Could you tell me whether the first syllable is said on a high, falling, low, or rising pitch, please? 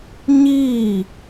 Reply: falling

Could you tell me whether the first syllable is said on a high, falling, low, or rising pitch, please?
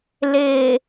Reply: low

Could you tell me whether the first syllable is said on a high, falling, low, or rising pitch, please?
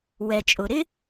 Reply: low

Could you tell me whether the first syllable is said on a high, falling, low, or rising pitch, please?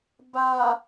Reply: low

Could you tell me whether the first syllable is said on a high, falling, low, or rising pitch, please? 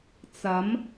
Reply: rising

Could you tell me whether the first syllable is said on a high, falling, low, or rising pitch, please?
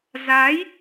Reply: rising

